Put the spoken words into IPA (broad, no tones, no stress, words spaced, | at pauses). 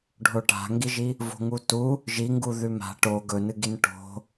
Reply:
ɖʱoʈa̤ŋɡiʒi | vo̤ŋutu | ʒiŋɡu ðʉma̤ ʈo ɡɵnɨɡin ʈo̤